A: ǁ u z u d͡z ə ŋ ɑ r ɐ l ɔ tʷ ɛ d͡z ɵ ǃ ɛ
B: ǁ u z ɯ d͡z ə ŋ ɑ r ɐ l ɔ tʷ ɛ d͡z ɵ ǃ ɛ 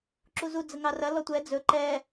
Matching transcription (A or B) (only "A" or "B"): A